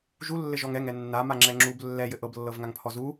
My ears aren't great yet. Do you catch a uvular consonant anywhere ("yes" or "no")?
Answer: no